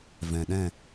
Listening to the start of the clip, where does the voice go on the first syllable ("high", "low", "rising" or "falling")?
low